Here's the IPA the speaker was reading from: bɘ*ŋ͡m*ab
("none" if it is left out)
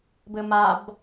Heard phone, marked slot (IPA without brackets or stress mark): m